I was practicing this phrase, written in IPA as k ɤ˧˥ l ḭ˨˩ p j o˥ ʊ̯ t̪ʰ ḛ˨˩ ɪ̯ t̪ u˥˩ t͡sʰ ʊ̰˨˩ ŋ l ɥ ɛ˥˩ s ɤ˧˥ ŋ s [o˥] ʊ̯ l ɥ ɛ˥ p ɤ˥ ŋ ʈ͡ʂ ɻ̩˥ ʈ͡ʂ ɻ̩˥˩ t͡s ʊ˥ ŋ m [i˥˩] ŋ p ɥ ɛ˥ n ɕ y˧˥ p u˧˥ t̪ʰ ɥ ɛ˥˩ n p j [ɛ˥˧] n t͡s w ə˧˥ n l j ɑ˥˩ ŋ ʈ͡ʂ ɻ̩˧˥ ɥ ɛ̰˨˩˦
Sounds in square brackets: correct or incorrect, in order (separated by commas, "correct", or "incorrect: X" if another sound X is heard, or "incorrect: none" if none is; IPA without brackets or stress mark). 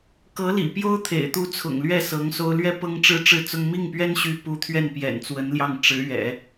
correct, correct, incorrect: ɛ̰˨˩